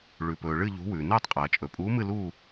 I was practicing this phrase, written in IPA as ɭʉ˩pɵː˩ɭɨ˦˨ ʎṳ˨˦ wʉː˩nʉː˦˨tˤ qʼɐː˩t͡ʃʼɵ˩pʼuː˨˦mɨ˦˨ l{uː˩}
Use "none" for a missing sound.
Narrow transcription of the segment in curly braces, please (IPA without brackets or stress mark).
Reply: uː˦˨